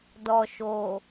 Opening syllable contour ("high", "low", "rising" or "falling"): low